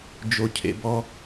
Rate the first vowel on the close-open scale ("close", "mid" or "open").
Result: mid